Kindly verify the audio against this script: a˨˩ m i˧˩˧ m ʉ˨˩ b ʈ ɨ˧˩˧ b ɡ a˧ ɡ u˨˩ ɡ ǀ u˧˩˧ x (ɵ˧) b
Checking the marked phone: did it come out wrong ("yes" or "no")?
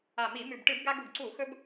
no